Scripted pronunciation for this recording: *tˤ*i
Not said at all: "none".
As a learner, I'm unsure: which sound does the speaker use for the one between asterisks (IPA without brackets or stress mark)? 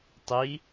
tˤ